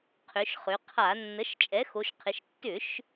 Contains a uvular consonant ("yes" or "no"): yes